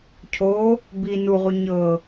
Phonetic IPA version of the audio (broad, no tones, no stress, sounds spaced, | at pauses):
cʰ o | b i n u ʁ u ɲ ɤ